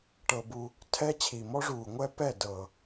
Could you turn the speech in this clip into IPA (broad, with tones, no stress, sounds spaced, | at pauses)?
ʈ ɤ˧ b u˧ | tʰ ɛ˦ t͡ɕʰ i˨ m ɔ˦ ʐ uː˨ ŋʷ ɛ˦ p ɛ˦˨ d ɤ˨